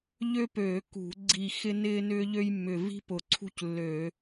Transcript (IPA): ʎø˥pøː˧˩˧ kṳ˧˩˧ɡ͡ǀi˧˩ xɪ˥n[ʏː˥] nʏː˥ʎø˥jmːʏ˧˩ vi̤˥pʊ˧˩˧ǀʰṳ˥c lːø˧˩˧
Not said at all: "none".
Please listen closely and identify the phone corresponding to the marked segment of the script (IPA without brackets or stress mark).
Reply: ɪː˥